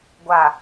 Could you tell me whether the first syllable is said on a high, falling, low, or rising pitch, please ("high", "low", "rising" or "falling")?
low